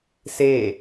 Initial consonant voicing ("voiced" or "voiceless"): voiceless